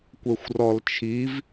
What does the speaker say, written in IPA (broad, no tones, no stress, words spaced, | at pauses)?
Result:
kʷɛxʷrɔlt͡ʃʰiv